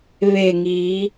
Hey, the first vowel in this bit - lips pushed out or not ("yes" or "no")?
no